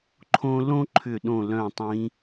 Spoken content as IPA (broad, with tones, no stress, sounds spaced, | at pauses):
ǃʰ õ˥ l õ˥ ǃʰ ʏ˧˩ ɗ õ˧˩ l œ̃˧˩ tˤ ĩ˨˦